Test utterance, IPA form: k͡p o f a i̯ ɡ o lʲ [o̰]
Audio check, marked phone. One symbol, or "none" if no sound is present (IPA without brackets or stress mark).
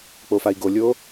o